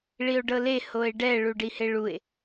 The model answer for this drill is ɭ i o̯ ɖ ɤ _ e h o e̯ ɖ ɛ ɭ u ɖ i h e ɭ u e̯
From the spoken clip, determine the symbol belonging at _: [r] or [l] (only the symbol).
l